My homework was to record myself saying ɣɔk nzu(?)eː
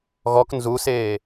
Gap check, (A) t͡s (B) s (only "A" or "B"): B